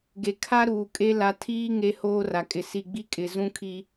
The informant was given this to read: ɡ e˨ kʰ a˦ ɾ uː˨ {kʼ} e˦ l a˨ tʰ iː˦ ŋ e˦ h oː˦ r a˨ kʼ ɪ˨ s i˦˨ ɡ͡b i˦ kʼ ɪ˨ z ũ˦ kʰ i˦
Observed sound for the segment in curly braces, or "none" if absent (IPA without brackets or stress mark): kʼ